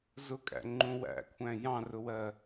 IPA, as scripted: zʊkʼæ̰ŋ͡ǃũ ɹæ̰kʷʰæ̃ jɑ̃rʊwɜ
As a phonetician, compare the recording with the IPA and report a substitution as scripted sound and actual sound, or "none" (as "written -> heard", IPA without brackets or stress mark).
ɹ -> w